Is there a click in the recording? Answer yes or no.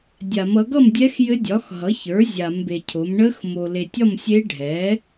no